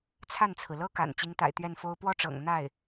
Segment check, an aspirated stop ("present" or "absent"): present